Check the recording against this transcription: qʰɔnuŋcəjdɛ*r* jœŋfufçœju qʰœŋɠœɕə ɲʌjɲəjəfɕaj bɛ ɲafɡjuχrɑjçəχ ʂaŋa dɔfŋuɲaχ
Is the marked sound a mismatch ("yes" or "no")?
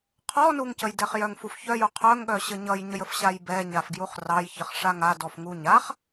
yes